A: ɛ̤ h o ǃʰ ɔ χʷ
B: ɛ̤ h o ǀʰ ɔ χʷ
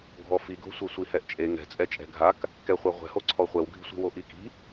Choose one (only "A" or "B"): B